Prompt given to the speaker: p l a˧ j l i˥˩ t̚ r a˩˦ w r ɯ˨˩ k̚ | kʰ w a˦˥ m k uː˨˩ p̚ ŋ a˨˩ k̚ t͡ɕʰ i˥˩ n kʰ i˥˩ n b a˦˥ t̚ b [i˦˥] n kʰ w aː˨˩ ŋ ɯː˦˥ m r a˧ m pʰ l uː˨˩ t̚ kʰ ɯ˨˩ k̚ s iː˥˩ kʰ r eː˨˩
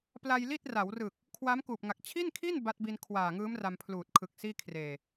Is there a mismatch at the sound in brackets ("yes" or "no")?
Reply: yes